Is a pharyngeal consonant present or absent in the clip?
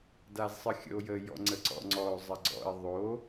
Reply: absent